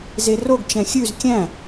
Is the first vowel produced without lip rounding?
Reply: yes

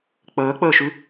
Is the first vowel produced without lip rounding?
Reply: yes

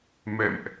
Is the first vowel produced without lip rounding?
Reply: yes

